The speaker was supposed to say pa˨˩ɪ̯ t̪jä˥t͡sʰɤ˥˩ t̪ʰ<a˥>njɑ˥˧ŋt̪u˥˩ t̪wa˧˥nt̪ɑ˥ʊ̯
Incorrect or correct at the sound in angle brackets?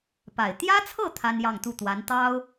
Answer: correct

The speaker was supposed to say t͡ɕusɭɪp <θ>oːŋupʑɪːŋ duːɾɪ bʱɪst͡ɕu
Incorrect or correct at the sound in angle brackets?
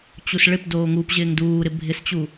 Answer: incorrect: d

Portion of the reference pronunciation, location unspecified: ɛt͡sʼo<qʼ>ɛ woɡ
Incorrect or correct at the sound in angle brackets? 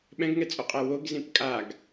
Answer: correct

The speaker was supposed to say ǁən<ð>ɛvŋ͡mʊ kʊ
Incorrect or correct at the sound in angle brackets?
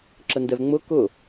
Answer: incorrect: d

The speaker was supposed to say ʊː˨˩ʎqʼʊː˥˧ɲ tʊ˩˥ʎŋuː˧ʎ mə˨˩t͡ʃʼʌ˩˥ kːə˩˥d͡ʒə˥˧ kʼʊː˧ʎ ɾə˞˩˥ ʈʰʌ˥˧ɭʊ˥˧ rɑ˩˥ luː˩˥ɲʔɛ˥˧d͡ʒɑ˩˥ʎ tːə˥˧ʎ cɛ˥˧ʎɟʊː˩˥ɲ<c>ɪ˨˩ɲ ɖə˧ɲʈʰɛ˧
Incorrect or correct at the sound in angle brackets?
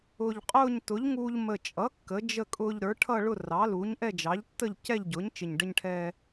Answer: incorrect: t͡ʃ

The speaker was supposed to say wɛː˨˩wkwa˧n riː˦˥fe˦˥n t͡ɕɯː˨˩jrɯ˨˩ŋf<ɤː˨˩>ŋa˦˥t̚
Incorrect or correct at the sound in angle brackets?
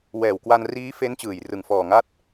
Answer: incorrect: ɔː˨˩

